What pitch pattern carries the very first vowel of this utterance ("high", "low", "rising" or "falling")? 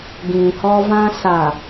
low